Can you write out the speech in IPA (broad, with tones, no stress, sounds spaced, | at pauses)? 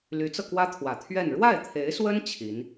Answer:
l y˧˥ t͡s ɤ˧ k w ä˥ t̪ʰ w ä˨˩ t̪ʰ ɥ ɛ˥˧ n ɻ w a˥˩ ɪ̯ t̪ʰ e˧˥ ɪ̯ s w ə˥ n t͡ɕʰ i˧˥ n